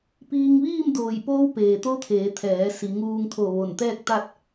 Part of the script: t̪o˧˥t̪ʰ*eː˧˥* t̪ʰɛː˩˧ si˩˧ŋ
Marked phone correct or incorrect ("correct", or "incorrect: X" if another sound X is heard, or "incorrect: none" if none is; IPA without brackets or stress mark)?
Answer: incorrect: eː˩˧